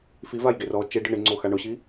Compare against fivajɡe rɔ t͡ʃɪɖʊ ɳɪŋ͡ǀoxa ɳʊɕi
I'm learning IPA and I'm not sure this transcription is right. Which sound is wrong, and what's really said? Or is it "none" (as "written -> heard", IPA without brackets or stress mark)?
none